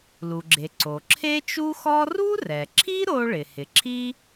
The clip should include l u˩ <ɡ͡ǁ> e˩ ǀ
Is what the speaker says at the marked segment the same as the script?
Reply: yes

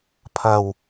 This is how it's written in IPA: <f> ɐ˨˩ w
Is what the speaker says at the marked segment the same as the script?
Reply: no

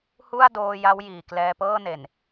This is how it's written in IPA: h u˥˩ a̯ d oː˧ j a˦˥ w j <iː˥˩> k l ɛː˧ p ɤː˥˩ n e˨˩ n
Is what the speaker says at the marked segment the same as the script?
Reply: no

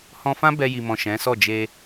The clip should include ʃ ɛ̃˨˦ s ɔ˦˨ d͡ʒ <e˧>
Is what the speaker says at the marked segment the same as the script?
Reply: yes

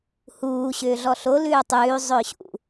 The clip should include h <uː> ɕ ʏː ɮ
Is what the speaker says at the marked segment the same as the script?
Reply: yes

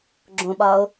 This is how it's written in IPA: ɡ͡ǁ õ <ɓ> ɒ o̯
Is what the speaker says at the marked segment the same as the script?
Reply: yes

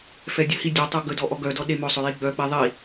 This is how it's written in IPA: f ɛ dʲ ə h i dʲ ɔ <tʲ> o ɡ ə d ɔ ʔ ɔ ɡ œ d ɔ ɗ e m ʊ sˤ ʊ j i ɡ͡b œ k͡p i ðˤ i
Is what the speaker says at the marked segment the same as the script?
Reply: no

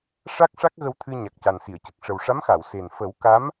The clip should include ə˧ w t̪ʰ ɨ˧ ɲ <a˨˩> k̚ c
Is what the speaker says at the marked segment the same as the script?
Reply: yes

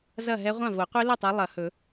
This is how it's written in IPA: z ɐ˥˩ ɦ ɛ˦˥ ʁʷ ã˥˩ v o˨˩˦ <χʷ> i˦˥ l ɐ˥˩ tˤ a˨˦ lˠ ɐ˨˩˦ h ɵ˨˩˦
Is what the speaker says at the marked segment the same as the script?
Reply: no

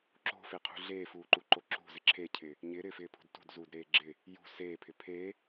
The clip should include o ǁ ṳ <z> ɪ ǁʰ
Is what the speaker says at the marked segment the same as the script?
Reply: yes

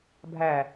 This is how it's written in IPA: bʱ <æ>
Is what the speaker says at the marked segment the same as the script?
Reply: yes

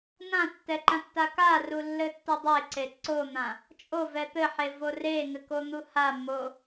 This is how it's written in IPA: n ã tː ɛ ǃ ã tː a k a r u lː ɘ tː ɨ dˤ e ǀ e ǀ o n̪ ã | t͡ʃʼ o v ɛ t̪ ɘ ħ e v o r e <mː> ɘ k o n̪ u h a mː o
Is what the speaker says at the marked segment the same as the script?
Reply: no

